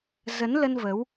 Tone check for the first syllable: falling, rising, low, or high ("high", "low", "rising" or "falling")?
rising